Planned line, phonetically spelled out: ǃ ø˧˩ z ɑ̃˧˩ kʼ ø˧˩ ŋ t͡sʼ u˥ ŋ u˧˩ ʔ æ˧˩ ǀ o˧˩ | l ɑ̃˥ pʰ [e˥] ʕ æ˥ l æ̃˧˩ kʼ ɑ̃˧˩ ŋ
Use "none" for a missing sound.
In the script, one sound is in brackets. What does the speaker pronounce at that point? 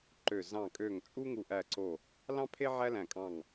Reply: e˥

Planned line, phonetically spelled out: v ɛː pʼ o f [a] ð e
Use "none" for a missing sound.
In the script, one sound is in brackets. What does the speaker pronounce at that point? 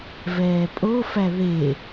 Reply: æ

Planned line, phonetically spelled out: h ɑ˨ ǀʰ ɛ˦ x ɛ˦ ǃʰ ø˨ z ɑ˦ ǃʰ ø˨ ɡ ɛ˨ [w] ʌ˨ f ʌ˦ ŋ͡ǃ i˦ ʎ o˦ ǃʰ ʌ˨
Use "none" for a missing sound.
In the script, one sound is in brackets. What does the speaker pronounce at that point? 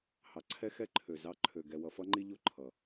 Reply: w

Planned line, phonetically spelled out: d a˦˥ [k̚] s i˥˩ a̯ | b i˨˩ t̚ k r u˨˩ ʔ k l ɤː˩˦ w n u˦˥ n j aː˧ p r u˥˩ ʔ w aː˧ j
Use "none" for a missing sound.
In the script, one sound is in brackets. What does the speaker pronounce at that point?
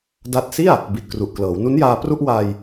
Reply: t̚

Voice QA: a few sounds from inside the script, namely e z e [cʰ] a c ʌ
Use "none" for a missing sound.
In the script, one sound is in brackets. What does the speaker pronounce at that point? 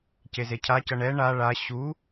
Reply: cʰ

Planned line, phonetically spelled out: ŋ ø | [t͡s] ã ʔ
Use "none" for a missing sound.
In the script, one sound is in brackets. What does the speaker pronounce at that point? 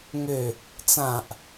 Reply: t͡s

